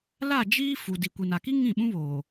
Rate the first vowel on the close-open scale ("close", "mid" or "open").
open